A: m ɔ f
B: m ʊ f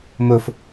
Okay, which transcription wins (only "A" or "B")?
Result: B